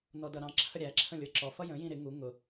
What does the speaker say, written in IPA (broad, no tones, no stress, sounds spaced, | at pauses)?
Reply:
n ɔ d ʌ ɾ ɑ̃ ǁʰ ə ɾʲ æ ǁʰ ə̃ lʲ ə˞ ǁ ɔ f ʌ j ə̃ j ĩ ɾ ɪ ŋ u ŋ ʊ